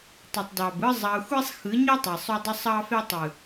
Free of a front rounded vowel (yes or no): no